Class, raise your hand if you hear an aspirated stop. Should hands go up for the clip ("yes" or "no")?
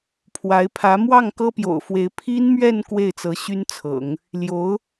yes